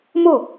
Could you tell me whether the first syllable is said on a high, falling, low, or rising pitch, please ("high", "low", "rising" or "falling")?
falling